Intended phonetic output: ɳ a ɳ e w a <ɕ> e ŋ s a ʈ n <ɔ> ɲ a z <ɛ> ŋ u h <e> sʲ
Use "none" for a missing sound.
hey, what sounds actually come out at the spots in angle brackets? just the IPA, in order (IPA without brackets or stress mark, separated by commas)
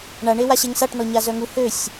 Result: ɕ, ɔ, œ, ø